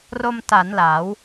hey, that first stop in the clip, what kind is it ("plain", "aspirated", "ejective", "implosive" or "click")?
plain